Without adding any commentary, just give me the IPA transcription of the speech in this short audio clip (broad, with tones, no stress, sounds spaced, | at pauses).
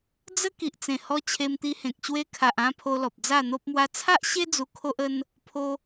d͡z ə˦ k i˨ ʔ t͡s ẽ˨˩ h ɔ˧ t͡ɕʰ e˧ m t̪ i˧ h ẽ˨ k̚ ɕ w e˧ kʰ a˨ ʔ ã˧ pʰ o˧ l ɔ˨ p̚ d͡z a˥˧ n̪ o˦ p̚ m w a˦ t͡sʰ a˦ ʔ ɕ e˦ d͡z u˧ kʰ o˦ ʔ ə˦ n | pʰ o˦